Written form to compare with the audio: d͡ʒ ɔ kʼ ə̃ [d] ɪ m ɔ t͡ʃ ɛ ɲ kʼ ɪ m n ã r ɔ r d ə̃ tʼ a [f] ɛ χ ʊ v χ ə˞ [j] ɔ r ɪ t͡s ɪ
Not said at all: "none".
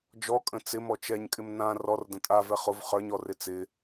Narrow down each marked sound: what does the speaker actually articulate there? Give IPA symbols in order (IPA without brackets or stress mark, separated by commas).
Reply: t͡s, v, ɲ